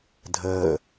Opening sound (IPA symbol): dʱ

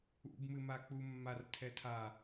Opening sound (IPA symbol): ṵ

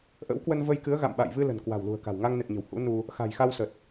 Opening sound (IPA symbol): ʔ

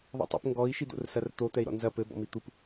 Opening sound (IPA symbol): ðˤ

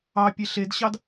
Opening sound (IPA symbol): ɑ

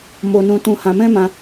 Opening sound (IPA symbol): m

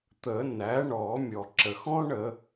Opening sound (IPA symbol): t̪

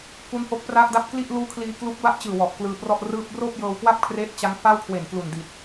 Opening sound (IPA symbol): k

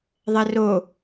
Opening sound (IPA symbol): ðˤ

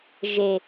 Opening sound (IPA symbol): ʒ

